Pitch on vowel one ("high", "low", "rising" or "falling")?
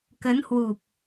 rising